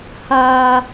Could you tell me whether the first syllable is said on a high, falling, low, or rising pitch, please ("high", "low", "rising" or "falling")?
low